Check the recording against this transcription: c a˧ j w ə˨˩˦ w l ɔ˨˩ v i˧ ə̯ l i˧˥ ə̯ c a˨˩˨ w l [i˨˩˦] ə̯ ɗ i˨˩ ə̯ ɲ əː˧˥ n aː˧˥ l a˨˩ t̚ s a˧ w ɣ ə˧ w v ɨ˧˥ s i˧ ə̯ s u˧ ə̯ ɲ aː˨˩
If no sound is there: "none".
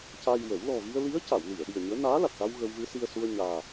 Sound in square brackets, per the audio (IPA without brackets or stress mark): i˨˩˨